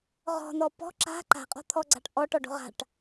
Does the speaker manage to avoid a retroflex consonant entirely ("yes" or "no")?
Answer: no